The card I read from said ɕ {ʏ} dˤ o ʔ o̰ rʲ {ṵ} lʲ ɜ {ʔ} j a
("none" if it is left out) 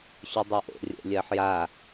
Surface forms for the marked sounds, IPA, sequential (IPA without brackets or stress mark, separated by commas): ʏ, o̰, ħ